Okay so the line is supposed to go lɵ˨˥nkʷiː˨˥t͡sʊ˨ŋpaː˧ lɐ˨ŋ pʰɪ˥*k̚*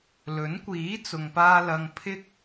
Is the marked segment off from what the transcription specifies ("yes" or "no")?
no